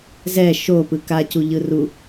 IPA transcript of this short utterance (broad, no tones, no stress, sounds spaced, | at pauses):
z ɛ ʃ o p ɯ k a c u ʎ ɯ r u